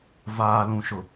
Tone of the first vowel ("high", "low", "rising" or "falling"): low